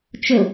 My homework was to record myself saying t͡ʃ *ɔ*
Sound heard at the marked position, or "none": ɵ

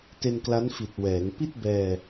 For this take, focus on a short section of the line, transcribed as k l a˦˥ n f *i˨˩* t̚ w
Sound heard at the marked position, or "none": i˨˩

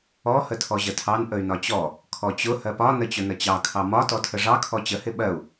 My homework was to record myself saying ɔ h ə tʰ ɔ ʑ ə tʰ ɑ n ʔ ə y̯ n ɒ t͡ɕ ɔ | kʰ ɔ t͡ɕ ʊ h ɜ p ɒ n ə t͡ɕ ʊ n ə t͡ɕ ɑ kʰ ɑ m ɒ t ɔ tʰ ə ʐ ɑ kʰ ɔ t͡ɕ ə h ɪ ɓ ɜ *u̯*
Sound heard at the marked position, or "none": u̯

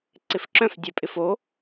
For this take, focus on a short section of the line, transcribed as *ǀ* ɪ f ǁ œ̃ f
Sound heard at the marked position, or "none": ǀ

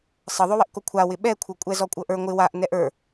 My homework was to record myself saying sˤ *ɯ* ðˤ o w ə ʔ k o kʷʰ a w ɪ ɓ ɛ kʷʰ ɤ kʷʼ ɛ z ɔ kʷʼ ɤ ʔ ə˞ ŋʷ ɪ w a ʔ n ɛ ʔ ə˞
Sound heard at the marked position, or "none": ɤ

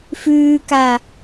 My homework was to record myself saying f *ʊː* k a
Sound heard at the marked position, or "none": ʉː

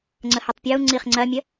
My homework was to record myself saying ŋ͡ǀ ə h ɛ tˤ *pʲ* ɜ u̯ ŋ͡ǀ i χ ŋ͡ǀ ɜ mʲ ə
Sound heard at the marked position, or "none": pʲ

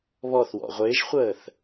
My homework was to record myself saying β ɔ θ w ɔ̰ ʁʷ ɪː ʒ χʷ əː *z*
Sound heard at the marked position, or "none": θ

